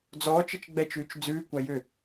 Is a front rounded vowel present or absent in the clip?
present